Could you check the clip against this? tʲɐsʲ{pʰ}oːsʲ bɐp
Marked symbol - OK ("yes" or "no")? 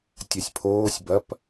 yes